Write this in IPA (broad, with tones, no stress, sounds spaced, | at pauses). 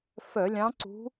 f œ˧˩˧ lʲ ɑ̃˧˥ ǀ ṳ˧˥